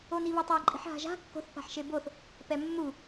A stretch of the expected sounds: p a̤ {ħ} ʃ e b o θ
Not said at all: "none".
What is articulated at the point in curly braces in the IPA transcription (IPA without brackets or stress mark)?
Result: ħ